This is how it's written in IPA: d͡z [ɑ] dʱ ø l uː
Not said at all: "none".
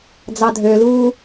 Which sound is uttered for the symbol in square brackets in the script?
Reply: ɑ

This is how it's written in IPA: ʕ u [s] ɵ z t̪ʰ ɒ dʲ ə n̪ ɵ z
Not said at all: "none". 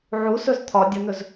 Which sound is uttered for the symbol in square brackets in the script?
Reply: s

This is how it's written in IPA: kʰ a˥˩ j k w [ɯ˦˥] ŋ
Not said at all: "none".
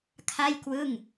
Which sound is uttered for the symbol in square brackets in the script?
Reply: ɯ˥˩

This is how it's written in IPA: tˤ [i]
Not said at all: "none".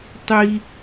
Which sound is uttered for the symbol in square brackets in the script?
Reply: i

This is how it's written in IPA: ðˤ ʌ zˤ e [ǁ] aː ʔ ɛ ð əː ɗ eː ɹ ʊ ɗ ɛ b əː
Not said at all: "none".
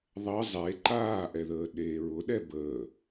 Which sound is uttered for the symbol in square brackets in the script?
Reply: ǃ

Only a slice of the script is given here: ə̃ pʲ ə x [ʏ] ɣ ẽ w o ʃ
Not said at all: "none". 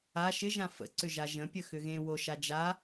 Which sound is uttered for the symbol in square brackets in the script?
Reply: ʏ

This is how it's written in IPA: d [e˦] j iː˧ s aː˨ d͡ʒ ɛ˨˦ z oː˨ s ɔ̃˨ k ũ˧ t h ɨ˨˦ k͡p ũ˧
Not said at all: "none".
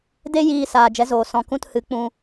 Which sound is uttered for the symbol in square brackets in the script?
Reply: e˦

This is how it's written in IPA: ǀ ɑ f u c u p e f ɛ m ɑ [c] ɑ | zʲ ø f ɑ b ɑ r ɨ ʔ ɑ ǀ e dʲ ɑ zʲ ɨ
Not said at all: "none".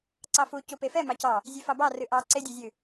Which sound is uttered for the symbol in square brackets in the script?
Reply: c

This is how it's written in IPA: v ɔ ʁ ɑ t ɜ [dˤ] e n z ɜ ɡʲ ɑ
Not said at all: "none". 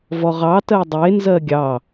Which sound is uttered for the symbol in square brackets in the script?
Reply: dˤ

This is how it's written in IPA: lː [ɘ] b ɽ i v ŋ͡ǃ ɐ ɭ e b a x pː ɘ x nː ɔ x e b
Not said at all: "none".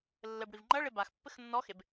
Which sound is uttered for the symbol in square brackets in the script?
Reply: ɘ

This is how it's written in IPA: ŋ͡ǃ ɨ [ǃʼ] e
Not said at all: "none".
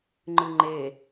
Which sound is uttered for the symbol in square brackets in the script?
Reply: ŋ͡ǃ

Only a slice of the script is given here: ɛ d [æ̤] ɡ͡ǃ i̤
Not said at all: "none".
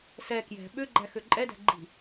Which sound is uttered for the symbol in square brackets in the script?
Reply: æ̤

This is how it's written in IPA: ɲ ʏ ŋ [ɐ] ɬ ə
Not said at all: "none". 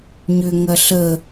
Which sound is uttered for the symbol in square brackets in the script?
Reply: ɐ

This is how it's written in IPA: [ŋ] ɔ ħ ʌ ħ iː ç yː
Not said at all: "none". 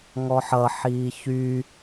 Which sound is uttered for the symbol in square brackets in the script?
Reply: ŋ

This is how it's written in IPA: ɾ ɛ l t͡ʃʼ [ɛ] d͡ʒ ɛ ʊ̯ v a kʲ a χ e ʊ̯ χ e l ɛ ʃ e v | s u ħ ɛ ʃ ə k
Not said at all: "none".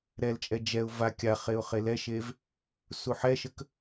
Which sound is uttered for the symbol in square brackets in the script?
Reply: ɛ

